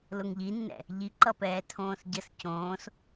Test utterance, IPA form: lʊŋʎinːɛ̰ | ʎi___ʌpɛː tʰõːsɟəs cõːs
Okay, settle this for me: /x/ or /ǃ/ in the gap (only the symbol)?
ǃ